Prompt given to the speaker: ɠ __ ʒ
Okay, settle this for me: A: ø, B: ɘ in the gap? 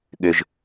A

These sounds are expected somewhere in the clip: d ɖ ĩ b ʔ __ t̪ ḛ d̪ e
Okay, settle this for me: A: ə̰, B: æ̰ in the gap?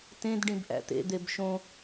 B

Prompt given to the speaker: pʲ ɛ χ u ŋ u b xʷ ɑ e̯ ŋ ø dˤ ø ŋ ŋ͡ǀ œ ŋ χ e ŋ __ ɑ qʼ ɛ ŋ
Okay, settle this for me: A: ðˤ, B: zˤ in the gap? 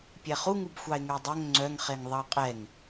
A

